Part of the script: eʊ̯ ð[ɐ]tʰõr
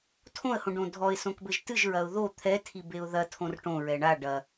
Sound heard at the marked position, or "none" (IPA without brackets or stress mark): ɐ